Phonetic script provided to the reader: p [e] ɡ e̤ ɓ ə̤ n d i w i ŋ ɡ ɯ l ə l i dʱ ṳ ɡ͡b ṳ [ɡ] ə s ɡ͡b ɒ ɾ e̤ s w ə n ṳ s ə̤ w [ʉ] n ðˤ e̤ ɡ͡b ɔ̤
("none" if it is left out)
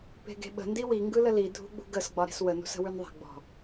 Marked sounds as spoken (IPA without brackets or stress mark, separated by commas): e̤, ɡ, ʉ